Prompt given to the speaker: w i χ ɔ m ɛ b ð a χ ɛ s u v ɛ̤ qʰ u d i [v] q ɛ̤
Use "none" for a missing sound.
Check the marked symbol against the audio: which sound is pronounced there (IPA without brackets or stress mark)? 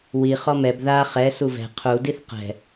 θ